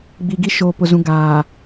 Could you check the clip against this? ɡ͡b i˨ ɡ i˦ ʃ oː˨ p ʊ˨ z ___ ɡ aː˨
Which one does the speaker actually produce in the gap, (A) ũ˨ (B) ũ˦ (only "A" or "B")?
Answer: A